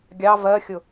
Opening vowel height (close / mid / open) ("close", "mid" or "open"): open